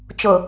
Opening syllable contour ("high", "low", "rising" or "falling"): low